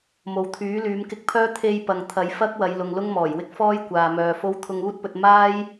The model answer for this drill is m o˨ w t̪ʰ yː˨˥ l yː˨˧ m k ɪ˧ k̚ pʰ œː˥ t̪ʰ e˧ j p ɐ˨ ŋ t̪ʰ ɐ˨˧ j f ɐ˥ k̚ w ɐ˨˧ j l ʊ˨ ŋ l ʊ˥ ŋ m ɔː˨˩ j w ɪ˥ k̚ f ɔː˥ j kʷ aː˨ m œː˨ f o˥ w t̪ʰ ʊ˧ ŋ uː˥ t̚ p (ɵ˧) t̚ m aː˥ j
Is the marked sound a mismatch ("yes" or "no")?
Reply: no